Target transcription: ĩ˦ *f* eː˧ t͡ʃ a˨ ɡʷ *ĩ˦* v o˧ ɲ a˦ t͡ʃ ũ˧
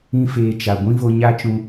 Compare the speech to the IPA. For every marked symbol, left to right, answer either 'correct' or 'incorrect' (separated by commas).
correct, correct